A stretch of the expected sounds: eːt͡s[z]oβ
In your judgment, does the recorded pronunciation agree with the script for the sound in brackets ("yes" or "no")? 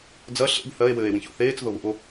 no